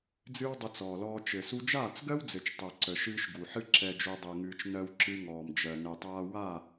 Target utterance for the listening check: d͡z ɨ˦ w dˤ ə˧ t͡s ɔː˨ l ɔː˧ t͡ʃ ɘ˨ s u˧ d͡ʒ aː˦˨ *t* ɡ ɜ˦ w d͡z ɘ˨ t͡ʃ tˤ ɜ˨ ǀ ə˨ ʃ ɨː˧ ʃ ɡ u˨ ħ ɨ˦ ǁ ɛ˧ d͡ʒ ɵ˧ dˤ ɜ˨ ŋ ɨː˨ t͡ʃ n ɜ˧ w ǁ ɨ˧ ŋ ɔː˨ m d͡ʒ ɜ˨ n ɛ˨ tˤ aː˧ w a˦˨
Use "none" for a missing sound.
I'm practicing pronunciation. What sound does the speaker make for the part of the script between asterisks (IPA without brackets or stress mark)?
t͡s